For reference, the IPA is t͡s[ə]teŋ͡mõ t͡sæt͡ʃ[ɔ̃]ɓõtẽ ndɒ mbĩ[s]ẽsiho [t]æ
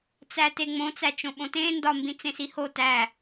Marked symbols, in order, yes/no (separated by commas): no, no, no, yes